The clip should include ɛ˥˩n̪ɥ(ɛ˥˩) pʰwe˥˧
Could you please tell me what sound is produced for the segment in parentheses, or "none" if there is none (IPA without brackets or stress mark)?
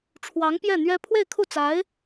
ɛ˥